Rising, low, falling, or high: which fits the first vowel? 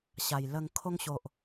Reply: low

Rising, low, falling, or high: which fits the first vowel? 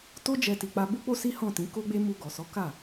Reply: high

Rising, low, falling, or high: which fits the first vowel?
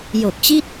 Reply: low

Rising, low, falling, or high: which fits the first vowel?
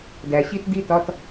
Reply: low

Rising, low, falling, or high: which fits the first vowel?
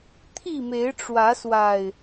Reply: falling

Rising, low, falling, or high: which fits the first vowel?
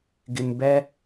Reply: low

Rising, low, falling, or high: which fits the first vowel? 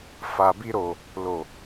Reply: low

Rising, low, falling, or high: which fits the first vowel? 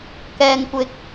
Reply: low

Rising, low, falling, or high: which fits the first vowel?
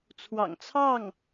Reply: low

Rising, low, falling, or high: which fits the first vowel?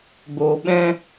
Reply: low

